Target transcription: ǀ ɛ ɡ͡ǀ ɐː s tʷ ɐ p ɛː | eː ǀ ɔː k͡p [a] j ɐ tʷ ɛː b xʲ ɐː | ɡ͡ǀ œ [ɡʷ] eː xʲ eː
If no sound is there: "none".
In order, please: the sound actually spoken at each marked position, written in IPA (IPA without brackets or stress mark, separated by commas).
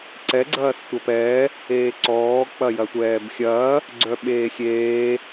ɐ, ɓ